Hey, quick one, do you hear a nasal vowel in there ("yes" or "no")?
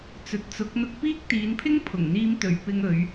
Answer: no